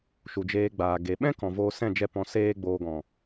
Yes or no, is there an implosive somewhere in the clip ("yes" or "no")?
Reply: yes